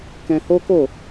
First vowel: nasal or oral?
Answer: nasal